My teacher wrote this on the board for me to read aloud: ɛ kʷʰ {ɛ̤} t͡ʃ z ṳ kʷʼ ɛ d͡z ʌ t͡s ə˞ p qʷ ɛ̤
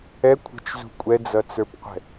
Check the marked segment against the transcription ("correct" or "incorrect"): incorrect